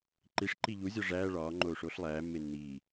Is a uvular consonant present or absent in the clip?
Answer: absent